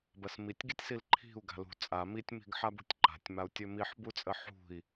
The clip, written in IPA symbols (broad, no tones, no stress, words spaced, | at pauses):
bɜsmitʲɡitʲsil ǃʰi̤u̯ ɡa̤lṳ t͡sʼa mitʲmi̤ɡ ħabṳtʲǃa̤tʲmau̯ tʲømiħbut͡sʼə ħṳi̯